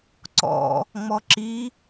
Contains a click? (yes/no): yes